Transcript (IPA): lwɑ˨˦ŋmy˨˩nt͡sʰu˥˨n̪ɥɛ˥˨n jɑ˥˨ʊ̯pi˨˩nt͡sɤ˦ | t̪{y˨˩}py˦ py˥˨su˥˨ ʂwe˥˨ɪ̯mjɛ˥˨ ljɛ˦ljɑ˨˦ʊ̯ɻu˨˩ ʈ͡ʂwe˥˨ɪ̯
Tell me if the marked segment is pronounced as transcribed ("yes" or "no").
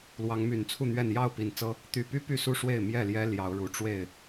yes